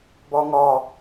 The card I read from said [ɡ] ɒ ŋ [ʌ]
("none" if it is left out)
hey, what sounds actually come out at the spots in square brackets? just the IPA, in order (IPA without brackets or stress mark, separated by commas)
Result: b, ɒ